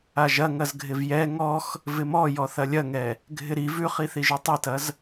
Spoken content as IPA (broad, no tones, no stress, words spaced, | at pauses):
aʒɐ ŋɐzɡʱɪvjɛ ŋɔx | vɪmɔjɔ θɐlʲɐŋɛ | ɡʱɪɾi vʉχiθiʒʉ tˤitɐz